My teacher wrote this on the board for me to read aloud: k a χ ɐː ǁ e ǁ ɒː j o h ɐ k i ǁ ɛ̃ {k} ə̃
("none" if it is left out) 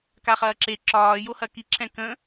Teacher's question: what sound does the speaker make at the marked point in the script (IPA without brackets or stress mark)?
k